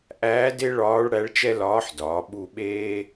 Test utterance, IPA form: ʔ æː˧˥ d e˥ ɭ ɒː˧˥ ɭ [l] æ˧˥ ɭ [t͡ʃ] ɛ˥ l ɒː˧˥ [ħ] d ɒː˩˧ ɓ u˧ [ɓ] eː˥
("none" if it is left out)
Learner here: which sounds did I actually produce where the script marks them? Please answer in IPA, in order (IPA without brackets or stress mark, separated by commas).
ɽ, t͡ʃ, ħ, ɓ